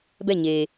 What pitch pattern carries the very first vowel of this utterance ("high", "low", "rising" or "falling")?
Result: falling